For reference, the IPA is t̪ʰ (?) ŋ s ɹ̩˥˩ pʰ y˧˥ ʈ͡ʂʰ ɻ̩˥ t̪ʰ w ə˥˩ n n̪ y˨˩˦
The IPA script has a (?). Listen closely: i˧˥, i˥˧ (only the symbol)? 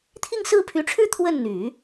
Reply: i˥˧